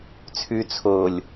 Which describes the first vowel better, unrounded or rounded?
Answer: rounded